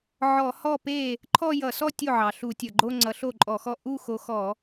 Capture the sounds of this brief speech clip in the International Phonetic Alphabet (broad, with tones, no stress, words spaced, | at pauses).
ʕɔ˧˩˧hɔ˥˩pe˥˩ | ǃʰɔ˥˧jʌ˧˩˧sɔ˥˧ tʲo˥˩ʕɑ˩ ɬu˧˩˧tʲʌ˩ɡ͡ǃo˥˧ ŋ͡ǀʌ˨˦ɬo˥˩ǃʼɔ˧˩˧xɔ˥˩ ʔu˥˧ xo˨˦xɔ˧˩˧